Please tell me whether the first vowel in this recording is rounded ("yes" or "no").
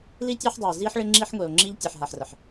no